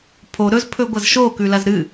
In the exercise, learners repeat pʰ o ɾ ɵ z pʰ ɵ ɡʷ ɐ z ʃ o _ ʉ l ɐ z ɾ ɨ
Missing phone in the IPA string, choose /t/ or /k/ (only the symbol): k